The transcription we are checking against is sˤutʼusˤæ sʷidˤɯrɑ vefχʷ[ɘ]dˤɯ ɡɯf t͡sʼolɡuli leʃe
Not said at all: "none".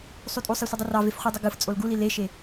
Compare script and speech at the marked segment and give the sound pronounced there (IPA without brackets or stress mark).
e